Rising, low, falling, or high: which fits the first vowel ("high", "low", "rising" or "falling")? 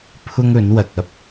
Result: high